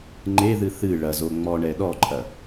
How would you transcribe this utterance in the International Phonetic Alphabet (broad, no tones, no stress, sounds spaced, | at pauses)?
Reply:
ŋ͡ǃ e ð ɨ θ ɨ ɭ ɐ z o ŋ͡m ɔ ɳ ɛ ɗ ɔ ǃʼ ɐ